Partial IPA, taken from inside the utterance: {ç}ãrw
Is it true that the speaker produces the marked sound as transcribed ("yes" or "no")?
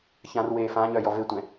yes